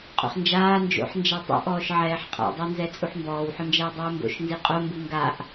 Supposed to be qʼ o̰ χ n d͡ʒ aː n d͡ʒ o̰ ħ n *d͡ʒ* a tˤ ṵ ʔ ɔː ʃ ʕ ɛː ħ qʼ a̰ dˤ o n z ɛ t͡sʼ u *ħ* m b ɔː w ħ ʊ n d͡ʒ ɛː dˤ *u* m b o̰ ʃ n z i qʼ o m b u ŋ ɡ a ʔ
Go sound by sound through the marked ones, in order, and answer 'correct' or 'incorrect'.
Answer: correct, correct, incorrect: uː

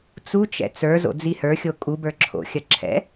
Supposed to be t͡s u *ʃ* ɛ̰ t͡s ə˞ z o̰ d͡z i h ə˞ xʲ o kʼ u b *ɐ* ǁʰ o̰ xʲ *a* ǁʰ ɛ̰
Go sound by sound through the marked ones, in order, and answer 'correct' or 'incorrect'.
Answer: incorrect: t͡ʃ, incorrect: ə˞, incorrect: ɐ

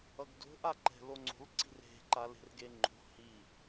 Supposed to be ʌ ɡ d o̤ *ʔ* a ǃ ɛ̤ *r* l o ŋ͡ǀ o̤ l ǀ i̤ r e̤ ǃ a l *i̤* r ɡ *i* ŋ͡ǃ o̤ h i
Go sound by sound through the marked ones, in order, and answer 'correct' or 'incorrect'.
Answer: correct, incorrect: none, incorrect: e̤, incorrect: e

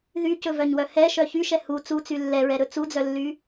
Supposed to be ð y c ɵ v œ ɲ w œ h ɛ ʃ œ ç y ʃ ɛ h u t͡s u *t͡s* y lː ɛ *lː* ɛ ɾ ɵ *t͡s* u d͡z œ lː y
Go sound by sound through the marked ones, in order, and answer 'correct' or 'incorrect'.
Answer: correct, incorrect: ɹ, correct

